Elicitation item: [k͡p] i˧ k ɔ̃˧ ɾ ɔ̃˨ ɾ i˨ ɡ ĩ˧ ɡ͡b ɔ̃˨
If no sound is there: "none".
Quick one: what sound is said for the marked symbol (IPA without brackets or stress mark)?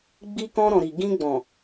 ɡ͡b